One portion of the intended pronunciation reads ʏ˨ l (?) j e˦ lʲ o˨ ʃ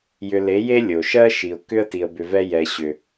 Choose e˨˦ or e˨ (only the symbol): e˨˦